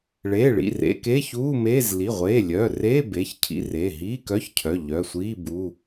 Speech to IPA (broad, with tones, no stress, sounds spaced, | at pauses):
ɭ eː˩˧˩ ɭ ḭ˩˧˩ r ḛ˧˥˧ k e˧˥˧ ç uː˧˥˧ m eː˧˥˧ z l i˩˧˩ ʁʷ eː˩˧˩ lʲ œː˩˧˩ r eː˧˥˧ b eː˩˧˩ ç cʰ ḭ˧˥˧ r eː˩˧˩ ɦ iː˧˥˧ k œ˧˥˧ ç cʰ œ˩˧˩ ʎ œ˩˧˩ sʷ iː˧˥˧ b u˧˥˧